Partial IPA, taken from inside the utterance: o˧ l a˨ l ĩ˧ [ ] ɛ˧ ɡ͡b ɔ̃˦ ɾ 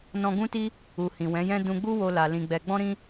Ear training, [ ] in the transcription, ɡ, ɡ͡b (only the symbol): ɡ͡b